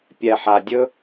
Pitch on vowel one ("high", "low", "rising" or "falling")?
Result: low